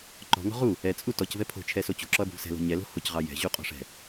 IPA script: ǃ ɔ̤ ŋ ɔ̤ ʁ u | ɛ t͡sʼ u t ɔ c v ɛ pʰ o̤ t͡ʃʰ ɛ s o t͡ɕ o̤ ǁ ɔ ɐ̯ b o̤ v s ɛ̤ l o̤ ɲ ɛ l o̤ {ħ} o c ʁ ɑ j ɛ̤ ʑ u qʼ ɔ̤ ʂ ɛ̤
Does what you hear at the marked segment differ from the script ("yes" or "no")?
yes